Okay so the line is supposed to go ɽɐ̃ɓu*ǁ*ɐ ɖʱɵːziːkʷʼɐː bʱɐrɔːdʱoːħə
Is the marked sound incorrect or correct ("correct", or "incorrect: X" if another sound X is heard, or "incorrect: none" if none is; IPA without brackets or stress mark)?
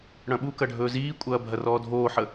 incorrect: k